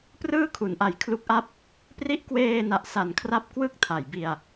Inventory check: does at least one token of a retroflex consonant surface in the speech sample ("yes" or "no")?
no